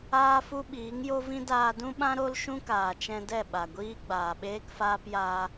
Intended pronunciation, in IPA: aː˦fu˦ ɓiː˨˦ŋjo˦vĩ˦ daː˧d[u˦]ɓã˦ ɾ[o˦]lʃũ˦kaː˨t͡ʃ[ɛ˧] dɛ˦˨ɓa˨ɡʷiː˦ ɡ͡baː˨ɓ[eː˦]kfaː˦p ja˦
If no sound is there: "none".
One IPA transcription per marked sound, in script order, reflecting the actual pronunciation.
ũ˦, o˦, ɛ̃˧, eː˦

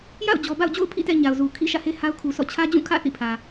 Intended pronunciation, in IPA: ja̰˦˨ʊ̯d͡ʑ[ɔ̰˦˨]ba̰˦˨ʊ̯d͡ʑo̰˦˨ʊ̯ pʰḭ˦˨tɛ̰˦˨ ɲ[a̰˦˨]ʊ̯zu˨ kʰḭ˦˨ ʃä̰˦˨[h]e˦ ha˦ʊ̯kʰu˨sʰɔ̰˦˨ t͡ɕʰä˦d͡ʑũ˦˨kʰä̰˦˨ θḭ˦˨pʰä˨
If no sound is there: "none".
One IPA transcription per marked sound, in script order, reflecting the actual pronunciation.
ɔ˨, a˨, h

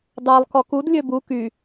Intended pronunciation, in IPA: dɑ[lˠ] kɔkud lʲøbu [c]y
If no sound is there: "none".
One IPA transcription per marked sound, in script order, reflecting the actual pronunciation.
lˠ, k

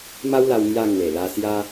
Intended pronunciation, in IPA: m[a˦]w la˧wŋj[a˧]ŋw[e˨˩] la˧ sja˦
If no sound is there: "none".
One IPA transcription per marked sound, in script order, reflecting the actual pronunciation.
a˦, a˧, e˨˩

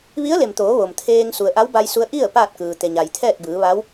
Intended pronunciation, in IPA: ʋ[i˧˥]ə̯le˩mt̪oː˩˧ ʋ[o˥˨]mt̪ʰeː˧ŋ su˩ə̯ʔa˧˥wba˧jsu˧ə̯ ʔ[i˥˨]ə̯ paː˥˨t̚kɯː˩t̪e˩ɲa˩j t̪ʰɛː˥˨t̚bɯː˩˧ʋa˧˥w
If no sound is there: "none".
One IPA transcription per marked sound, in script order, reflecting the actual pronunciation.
i˧˥, o˩, i˥˨

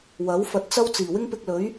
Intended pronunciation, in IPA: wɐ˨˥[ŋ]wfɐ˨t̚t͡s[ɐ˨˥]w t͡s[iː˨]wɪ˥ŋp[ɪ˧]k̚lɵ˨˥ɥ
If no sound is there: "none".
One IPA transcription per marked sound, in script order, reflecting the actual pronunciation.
none, ɐ˥, iː˨˩, ɪ˧

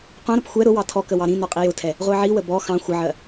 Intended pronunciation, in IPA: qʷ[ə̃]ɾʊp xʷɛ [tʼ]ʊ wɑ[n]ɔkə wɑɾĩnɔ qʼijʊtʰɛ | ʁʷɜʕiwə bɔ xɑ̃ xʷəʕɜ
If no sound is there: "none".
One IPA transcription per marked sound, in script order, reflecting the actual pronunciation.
ɑ̃, ɾ, tʰ

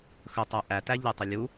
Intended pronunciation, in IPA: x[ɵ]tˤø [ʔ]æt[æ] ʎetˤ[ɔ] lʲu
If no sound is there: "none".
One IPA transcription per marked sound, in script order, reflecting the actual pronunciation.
ɵ, ʔ, æ, ɵ

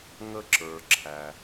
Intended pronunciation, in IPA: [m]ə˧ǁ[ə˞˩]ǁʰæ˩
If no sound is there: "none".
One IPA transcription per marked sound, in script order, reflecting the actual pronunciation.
ŋ, ə˞˩

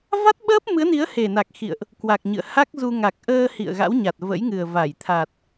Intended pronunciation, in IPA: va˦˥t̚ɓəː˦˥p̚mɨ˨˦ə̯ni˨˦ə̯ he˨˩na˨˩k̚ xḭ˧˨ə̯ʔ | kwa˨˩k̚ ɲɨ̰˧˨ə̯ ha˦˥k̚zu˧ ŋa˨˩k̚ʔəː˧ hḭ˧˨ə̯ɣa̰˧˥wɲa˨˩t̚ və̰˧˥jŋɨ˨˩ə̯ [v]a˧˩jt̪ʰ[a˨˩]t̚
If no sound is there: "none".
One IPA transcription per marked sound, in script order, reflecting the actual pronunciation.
v, a˨˩

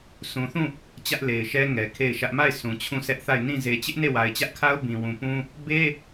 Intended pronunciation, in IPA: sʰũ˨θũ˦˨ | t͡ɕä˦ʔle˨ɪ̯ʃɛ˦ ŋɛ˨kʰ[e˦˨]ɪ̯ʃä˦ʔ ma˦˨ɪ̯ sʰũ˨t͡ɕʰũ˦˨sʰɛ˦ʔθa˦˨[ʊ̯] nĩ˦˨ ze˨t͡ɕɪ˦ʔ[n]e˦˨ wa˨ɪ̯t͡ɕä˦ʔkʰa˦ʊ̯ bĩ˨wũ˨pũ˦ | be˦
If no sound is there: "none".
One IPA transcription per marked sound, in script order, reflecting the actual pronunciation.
e˦˨, ɪ̯, n

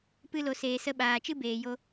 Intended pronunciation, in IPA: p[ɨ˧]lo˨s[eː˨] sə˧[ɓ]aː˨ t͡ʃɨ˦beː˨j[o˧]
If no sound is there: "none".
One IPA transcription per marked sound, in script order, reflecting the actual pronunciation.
ɨ˧, eː˨, ɓ, o˧

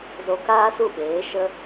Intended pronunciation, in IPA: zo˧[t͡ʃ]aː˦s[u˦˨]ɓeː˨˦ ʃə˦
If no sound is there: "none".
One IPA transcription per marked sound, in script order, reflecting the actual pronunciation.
k, u˦˨

